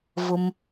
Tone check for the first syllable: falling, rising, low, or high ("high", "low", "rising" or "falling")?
low